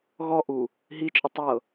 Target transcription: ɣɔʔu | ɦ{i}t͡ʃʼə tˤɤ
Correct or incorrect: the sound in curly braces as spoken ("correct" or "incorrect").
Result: correct